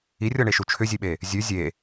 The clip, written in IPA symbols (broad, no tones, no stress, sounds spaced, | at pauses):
i rʲ ɔ ɳ e ʃ u t͡ʃʰ ʏ zʲ e ɓ e | zʲ ʉ zʲ e